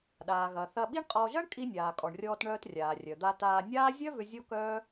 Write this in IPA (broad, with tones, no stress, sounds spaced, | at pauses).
ɗ aː˩ ɣ ɐ˩ θ ɐ˧ ɓ i˥ ɳ qʼ ɔ˧ ʒ ɐ˥ ɳ kʼ i˧ nʲ aː˩ kʼ ɔ˩ ɳ rʲ ɔː˧ t ɳ œː˧ t rʲ aː˩ rʲ œ˩ d̪ a˧ t aː˧ nʲ aː˥ zʲ œ˥ v ʏ˧ zʲ o˥ k œː˥